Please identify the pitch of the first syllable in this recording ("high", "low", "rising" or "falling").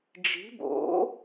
rising